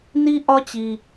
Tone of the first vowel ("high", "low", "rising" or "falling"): high